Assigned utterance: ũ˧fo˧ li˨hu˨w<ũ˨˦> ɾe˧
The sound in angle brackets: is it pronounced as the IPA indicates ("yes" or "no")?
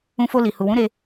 yes